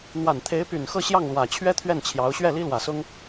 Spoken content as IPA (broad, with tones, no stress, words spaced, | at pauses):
n̪wa˨˩nt̪ʰe˧˥ɪ̯py˨˩n xɤ˥˧ɕjɑ˥˩ŋlwä˨˩t͡ɕʰɥɛ˥ t̪ʰɥɛ˥˩nt͡ɕʰjɑ˧˥ʊ̯ ɕɥɛ˥˩li˥lwä˨˩sʊ˥ŋ